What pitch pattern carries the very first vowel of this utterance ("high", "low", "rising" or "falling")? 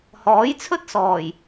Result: rising